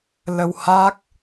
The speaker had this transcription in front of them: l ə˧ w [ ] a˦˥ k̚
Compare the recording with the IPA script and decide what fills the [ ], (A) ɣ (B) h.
B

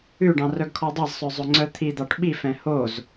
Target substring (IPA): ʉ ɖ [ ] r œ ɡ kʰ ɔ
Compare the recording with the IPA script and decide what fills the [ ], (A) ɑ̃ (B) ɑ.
A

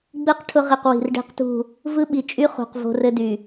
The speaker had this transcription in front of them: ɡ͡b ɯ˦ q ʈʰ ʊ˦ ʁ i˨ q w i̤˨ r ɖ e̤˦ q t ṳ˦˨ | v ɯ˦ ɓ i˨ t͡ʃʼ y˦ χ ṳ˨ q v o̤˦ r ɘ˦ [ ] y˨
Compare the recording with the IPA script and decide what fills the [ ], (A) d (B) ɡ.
A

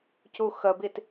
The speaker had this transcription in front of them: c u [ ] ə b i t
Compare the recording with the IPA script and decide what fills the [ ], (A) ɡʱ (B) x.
B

